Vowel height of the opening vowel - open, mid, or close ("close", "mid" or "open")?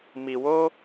close